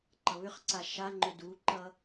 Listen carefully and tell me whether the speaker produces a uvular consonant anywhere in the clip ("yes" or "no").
yes